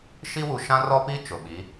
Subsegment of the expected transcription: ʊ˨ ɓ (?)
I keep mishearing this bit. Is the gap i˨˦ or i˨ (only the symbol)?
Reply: i˨˦